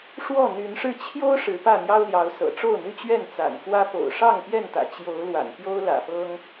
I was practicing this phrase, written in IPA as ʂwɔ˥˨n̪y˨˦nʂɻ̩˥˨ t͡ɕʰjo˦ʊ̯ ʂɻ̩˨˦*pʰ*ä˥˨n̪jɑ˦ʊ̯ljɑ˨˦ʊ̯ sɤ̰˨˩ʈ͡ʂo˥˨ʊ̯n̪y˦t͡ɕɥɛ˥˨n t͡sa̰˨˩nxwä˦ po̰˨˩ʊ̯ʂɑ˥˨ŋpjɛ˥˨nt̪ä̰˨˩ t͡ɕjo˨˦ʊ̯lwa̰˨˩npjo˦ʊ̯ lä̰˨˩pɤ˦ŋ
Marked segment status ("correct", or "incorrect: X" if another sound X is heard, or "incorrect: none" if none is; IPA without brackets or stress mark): incorrect: p